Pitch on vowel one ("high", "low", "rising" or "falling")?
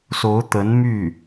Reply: rising